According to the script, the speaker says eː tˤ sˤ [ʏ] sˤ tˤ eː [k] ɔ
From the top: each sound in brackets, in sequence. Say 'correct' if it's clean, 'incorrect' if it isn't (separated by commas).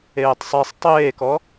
incorrect, correct